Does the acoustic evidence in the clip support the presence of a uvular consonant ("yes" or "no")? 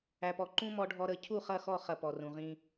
yes